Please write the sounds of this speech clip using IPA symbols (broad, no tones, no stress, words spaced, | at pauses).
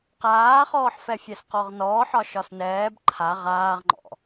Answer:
qaːχɔːħfɛfʲɛs qɔʁnɔːħɒ ʃɒsnɛːb ǃʰa ʁaːʁŋ͡ǃɔ̰